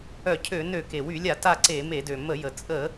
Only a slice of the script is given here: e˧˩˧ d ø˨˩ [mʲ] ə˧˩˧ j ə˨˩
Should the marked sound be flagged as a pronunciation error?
yes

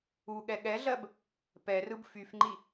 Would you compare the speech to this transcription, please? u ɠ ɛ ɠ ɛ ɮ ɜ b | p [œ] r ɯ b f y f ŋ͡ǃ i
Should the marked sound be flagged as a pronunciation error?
yes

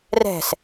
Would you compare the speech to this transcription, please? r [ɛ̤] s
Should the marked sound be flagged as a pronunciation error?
no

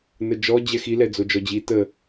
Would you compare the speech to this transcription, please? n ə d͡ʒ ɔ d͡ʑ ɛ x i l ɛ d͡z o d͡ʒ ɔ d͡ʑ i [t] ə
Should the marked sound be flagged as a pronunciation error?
no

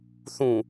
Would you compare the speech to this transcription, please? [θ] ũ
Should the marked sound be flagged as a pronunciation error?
no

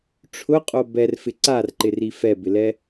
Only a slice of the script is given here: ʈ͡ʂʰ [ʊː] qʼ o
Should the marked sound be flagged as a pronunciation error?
yes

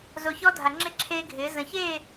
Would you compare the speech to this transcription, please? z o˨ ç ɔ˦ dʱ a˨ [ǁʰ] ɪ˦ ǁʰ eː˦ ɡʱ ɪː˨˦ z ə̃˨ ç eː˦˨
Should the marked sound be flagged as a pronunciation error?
yes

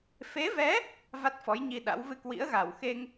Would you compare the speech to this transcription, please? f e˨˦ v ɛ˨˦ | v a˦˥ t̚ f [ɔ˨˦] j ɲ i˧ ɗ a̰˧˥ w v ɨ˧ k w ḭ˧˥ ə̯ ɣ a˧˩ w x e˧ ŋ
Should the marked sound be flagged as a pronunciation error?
no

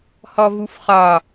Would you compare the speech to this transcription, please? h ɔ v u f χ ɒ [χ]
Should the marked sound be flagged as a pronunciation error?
yes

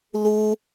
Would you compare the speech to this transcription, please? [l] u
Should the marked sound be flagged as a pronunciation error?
no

